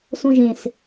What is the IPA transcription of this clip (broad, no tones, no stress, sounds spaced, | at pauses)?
s õ ʒ ẽ s